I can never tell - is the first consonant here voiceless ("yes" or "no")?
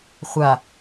yes